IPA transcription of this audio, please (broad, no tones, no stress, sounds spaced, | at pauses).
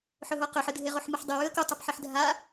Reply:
ħ ɵ ɦ o q ɵ ħ ɨ dʱ e ʁ o ħ m ɨ ħ dˤ ɨ w ʉ ə̯ k u tˤ u p ħ i ħ dʱ a